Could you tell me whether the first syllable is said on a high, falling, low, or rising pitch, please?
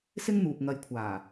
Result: high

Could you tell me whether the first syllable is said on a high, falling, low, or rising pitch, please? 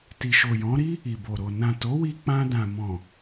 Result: low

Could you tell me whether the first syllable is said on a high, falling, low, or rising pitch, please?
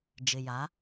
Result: low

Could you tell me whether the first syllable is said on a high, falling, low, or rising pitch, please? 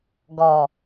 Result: low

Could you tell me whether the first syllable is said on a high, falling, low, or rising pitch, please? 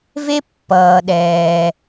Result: high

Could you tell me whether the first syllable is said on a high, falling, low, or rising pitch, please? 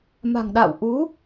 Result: low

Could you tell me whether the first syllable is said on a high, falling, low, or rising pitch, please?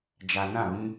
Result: low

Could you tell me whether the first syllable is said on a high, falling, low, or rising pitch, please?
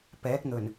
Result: rising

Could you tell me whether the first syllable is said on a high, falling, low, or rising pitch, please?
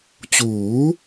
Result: rising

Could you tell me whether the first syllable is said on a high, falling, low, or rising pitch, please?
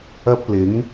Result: high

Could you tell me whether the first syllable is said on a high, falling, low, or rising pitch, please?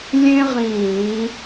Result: high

